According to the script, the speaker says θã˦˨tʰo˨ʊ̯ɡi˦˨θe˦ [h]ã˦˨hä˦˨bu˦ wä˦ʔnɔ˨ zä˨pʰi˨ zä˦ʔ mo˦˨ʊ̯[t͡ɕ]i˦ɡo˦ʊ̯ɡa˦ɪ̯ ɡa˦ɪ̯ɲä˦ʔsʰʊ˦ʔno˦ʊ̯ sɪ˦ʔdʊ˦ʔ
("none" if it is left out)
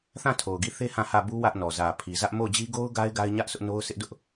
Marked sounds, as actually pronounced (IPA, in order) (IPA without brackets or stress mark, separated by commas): h, d͡ʑ